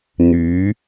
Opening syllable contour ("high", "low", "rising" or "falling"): rising